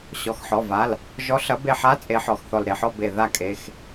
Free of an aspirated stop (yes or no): yes